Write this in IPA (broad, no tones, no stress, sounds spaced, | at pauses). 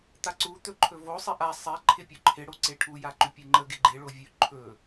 t̪ a ǀ u t̪ ɵ ǃʰ ɵ v o sˤ ɪ ʔ a sˤ e ǃʰ ɪ pʲ ɵ ǃʰ ɪ ɽ o ǀ e ʈʰ u j a ǃ ʉ pʲ e ŋ͡ǃ ə ɡ ɪ ɡ͡ǃ e ɭ o vʲ ʉ ǃʰ ɵ